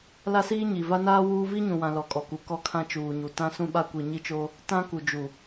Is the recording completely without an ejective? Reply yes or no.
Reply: no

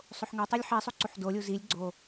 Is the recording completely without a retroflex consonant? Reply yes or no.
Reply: yes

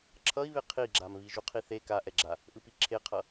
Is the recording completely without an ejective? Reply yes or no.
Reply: yes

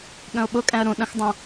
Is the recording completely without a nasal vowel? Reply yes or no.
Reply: no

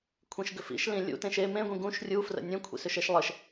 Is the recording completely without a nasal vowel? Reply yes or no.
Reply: no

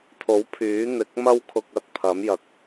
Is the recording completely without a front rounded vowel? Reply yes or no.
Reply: no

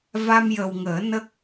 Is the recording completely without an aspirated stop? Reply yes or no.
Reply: yes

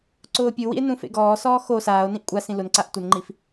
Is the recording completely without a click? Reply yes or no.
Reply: no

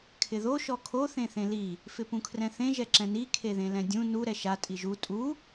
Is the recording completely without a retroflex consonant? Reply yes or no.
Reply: yes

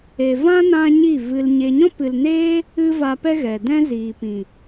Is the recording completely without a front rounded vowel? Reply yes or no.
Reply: yes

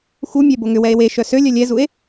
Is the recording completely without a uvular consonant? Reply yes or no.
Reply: yes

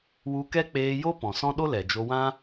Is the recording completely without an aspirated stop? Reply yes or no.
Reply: yes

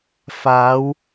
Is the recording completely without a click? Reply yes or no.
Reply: yes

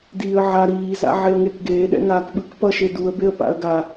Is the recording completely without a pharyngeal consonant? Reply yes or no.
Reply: no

